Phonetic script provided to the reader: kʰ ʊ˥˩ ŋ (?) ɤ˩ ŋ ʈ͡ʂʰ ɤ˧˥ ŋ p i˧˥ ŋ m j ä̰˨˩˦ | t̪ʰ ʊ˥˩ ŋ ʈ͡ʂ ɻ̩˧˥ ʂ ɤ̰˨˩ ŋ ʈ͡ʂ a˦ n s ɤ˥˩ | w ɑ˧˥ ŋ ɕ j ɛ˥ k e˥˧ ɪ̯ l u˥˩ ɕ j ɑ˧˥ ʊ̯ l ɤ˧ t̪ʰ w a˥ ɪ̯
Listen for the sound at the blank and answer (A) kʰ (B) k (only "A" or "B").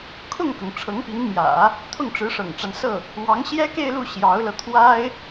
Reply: B